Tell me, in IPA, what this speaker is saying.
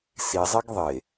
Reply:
sizˤeɡ ðˤe

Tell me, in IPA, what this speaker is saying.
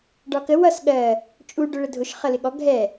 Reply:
ɖɒkə wʌs ɠɜ | t͡ʃʼu ɖʊɭədʱʊʃ χʌlɪɠɔ ɡʱɛ

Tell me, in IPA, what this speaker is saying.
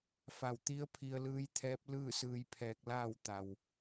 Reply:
fa˧˩w t̪i˧˥ə̯pʰi˧ə̯lɯː˧˥jt̪ʰɛː˧˥p̚ lɯː˥˨sɯː˧jpʰɛː˧k̚laː˥˨w t̪a˩w

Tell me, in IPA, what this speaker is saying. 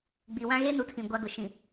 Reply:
ɡ͡bi˨wã˦ ɣe˦nu˨tʰĩ˨ ɡʷa˦ɡʊ˨ ʃĩ˨

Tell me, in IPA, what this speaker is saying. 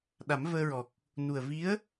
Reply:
ɗa˨˩˦mvəː˧ɹɔ˨˩k̚ | nu˨˩ə̯vi˧˥ə̯

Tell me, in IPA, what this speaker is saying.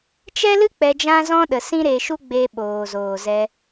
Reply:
t͡ʃɛ˦lɨ˦ k͡pɛ˧d͡ʒã˦zɔ̃˦ɗə˨ sĩ˦ɾe˧ʃu˦ɡ͡be˧ ɓoː˨zoː˨zɛ˧

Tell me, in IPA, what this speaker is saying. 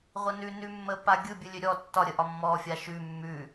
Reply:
ʁʷənʉnʉmːə paɡʲɯ bʲɯlʲøɾʲɔ tːɒɾʲəʔɒ mːɔfʲa ʃʉ mːʉ

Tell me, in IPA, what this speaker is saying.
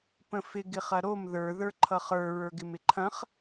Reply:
pə̃fɪ ɡɪχɐɾom ðə˞ ðə˞ǃʰʌχə˞ ɹə˞ɡɪmɪǃʰɐ̃χ

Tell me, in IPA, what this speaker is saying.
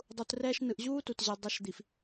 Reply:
dˤu˨trɛː˦ʃnɯ˨ʔ ʑuː˦tu˨tʑe˨ dˤʌ˨˦ʃd̪i˨f

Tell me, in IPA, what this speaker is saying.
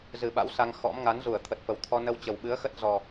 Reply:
zɨ˨˩ɓa̰˧˥w sa˧ŋ xɔ̰˧˥m ŋa˨˦nzu˧˩ə̯ t̪ʰə˨˩t̚fə˨˩wt̪ʰɔ˧ nə˧wt͡ɕə˨˩wɓɨ˨˦ə̯xə˦˥t̚ zɔ˨˩

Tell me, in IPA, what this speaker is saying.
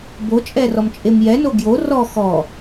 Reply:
bot͡ʃʼɛrɔmt͡ʃʼem jɛno ɡjo rɔ xɔ

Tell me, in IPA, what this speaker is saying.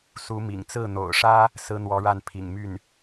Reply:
su˧˥mḭ˨˩ŋ t͡sɹ̩˥˩n̪o̰˨˩ʊ̯ʂä˥ | sɹ̩˥n̪wɔ˧˥ɻa˥˩n pʰḭ˨˩ŋmy˥˩n

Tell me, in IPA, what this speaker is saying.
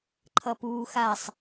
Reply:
ǃʰʌpuːxasˤ

